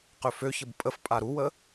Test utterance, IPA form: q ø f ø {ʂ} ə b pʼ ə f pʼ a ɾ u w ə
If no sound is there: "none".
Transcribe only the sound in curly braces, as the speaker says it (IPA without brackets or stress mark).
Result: ç